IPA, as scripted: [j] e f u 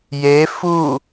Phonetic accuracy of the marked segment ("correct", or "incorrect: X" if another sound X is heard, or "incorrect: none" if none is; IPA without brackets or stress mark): correct